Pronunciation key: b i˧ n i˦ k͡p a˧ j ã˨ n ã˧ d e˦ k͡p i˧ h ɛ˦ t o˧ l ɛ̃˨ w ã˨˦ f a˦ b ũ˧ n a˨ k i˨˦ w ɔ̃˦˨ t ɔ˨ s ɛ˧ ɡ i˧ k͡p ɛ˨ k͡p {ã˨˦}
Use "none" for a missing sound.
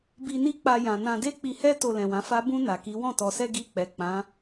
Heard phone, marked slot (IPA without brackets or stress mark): ã˨˦